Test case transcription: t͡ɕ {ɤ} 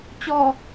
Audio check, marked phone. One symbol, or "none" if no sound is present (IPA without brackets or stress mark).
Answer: ɔ